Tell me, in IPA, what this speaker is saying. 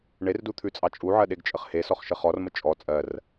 ɳ e r d u t̪ʰ ʉ t͡sʼ ɑ t͡ʃʼ u ʕ ɜ ɗ e ɡ t͡ʃʼ ə χ h e s ɔ χ ʃ ə χ ɔ r m ə t͡ʃʼ ɔ t͡sʼ ɜ r

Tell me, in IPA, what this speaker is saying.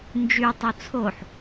n d͡ʒ y tˤ u t͡sʰ o ħ

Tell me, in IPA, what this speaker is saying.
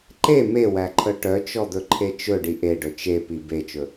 ǃ e m e w æ ǃʰ œ ʈ œ t͡ʃ ɔ d̪ ɵ ǃʰ e t͡ʃ ɵ ɖ i ʔ e ɖ ɵ t͡ʃ e p i b e t͡ʃ ɵ

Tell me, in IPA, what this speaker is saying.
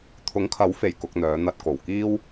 t̪ʰ ʊ˨˥ ŋ kʰ ɐ˨˥ w f e˨˩ j k ʊ˧ k̚ n̪ œː˨˧ n̪ ɐ˧ t̚ k o˨˩ w k iː˥ w

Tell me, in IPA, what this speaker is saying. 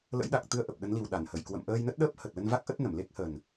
l ə̰˧˥ j ɗ a˨˩ k̚ t̪ ɨ˧ ə̯ ʔ ə˨˩ p̚ ɗ ə˨˦ n l i˨˩ w ɗ a˧˩ n h ə˧˩ j k w ə̰˧˨ m ʔ əː˧ j n ə˦˥ t̚ ɗ əː˦˥ p̚ h ə˨˩ t̚ l ə˧ n v a˦˥ k̚ ʔ ə˦˥ t̚ n ə˧˩ m l e˦˥ k̚ h ə˨˩ n

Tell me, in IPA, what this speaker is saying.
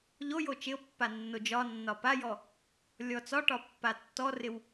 ʎ o j o t͡ʃ ɪ o̯ pː a nː o d͡ʒ ɒ nː ɒ p a j ɔ | lʲ ɔ t͡s ɒ ʈ ɒ pː a tː ɔ r ɪ w

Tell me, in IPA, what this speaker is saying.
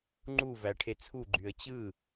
ŋ͡ǃ u v æ ʈʰ e t͡sʰ u ɡ͡ǃ y ə̯ t͡ɕ ɯ

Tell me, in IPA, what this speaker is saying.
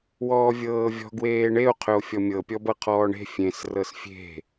w ɔː vʲ ɤː vʲ ɔ̤ ɡ w eː ɳ e o̯ qʰ ʏ o̯ fʲ ɔ mʲ ɤ pʲ ɔ b ɤ qʰ ɔː ɳ e̤ fʲ ẽ s r ɤ s fʲ e̤

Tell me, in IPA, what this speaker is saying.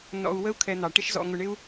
n ɔ̰˧ u̯ w ə˦ u̯ kʰ ɛ˧ n̪ ɑ˨ ʈ ɪ˦ ʃ z ɔ̰˧ ŋ ʊ˧ ɳ ɪ˦ u̯

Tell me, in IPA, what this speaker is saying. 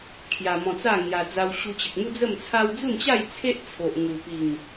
kʰ j a˧ m ɔ̃˧ t͡s a˥˧ ŋ j a˧ d͡z a˧ w ɕ u˧ t͡ɕ ə˨ k̚ m u˦ d͡z ə˥˧ m t͡sʰ a˦ w d͡z u˥˧ n t͡ɕ a˥˧ j t͡sʰ e˦ ʔ t͡sʰ o˨ ʔ ŋ u˨˩ p i˨˩ ŋ

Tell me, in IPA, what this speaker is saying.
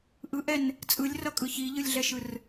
ʔ ɯ ʔ ɛ n | t͡sʼ ɯ lʲ r ʌ kʼ ɯ ç i ʎ ɯ lʲ ɮ ɛ ʃ ɯ r

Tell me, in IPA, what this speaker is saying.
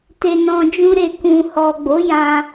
t e˧ n ɔ̃˧ d͡ʒ ũ˧ ɾ e˨ k ũ˨ h ɔ˨ ɡ͡b o˨˦ j ã˧

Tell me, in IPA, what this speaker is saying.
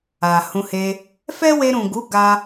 a˨ h ũ˧ h e˧ | f ɛ˦ w e˧ ɾ ũ˨ ɡ u˨˦ ɡ a˧

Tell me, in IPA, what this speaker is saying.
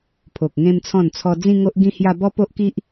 pʰ o˨ k̚ ŋ ẽ˦ m t͡sʰ ɔ̃˥˧ n t͡sʰ ɔ˧ d͡z ĩ˦ ŋ o˦ ʔ ɡ ĩ˦ h j a˦ b ɔ˦ p o˦ ʔ k i˦ ʔ

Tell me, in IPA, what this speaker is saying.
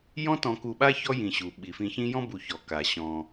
j ɔ̃˦ t ɔ̃˨ k u˨ ɓ a˦ ç ɔ˥ j ĩ˨ ɕ u˩ ɓ i˩ f ĩ˨ ç ĩ˦ j ɔ̃˥ b u˨ ç ɔ˩ k a˩ ɕ ɔ̃˨

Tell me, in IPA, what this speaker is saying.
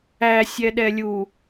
æ sʲ ɛ ɗ ɛ lʲ u

